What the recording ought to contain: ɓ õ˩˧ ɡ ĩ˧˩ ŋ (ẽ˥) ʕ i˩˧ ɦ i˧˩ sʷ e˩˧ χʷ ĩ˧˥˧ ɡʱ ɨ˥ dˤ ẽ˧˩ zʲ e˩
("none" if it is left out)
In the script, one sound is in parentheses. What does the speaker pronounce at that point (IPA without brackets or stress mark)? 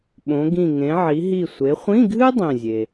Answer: ẽ˩˧